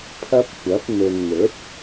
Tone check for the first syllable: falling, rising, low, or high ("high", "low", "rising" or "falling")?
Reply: high